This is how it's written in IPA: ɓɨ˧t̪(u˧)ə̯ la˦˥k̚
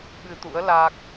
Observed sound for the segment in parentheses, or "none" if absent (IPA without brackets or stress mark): ṵ˧˥